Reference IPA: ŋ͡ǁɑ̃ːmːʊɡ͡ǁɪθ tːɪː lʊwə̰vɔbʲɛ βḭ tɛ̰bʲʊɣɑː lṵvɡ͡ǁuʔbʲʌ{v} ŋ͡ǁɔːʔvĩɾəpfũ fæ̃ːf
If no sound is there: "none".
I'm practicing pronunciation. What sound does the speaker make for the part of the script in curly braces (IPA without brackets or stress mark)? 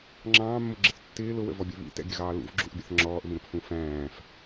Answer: θ